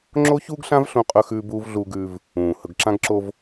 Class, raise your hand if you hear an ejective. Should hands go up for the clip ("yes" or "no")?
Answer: yes